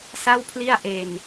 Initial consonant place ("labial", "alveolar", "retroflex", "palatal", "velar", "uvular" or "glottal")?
alveolar